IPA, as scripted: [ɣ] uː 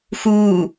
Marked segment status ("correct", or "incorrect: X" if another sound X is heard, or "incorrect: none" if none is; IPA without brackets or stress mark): incorrect: x